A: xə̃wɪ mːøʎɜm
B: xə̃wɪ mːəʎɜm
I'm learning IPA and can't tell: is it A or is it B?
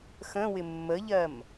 B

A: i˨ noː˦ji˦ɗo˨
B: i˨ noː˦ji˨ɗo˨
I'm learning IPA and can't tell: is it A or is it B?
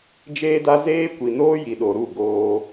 B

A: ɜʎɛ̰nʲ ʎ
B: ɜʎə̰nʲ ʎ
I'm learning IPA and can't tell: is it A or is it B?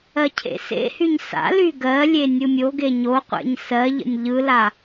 B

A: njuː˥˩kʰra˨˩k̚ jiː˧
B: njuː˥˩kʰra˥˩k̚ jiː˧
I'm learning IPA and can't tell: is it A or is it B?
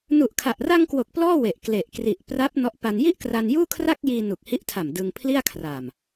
B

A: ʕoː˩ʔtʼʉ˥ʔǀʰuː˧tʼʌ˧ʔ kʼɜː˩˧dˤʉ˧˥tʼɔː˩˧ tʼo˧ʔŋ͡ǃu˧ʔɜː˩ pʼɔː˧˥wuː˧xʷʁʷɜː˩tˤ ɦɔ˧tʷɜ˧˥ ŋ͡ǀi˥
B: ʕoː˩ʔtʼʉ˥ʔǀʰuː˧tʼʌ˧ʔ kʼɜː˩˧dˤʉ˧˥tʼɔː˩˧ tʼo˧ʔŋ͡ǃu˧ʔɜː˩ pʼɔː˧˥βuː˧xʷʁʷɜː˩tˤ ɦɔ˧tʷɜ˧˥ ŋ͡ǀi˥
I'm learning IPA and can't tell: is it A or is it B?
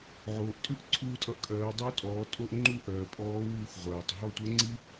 A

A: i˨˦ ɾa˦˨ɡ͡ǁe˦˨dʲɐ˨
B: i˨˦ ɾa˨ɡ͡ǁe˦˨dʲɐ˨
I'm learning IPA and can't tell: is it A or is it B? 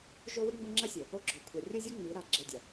A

